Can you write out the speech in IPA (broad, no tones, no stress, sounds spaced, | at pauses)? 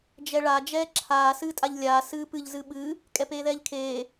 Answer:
d͡ʒ ɛ ɭ a d͡ʒ ɛː ǁʰ aː s ɨː tʼ a ʎ lʲ aː s ɨː p ɨ ʎ z ɨ ɓ ɨ | kʼ ɛ p eː ð ɛː ʎ kʰ eː